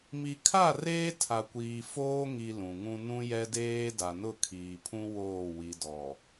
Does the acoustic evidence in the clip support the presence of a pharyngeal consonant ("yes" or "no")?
no